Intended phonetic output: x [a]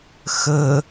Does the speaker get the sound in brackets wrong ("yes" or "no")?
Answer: yes